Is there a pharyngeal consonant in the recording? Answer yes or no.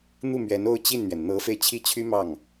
no